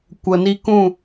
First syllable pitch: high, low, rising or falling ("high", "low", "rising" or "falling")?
low